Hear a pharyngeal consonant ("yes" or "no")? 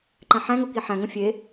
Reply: yes